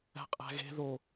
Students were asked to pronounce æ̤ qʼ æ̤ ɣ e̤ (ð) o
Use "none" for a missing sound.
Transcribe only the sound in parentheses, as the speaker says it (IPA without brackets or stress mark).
ð